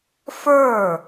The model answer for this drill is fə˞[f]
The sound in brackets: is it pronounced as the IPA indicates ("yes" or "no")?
no